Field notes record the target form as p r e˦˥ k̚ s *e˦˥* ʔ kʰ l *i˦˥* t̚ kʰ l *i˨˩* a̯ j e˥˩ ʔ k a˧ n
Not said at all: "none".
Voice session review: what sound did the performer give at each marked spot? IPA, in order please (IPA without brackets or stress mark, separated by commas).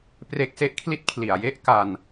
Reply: e˦˥, i˥˩, i˨˩